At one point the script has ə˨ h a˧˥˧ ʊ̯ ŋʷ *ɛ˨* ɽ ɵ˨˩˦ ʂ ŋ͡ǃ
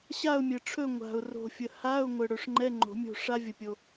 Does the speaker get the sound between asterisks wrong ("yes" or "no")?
yes